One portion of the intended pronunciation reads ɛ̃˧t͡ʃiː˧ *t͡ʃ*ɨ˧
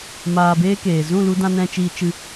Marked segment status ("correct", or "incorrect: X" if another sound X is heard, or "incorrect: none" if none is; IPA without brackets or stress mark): correct